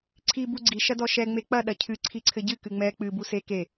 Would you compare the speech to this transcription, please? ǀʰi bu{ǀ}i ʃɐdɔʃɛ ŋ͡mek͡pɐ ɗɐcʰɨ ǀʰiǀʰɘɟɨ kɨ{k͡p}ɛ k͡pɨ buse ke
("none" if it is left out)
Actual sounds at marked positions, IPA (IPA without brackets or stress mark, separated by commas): ɡ͡ǀ, ŋ͡m